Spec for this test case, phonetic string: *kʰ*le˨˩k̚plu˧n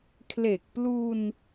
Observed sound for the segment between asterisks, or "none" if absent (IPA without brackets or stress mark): kʰ